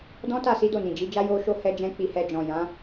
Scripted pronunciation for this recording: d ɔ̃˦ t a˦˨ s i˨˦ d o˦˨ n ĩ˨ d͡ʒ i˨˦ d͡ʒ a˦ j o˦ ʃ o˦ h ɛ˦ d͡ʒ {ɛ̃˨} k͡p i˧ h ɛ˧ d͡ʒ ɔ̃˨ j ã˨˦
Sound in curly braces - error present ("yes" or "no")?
yes